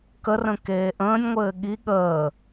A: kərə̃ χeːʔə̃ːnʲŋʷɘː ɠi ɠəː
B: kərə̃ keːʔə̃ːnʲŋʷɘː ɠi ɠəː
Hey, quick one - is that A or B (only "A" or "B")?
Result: B